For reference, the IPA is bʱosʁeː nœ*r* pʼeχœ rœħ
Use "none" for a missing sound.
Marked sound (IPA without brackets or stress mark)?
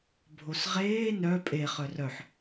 none